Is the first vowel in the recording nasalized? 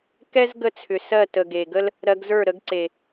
no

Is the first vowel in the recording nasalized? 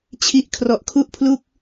no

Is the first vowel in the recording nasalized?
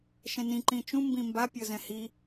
yes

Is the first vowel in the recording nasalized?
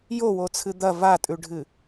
no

